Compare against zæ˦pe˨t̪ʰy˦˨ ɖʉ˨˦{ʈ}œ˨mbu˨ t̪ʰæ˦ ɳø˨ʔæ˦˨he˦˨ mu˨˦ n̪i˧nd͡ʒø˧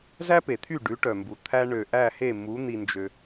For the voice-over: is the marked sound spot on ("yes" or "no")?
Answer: yes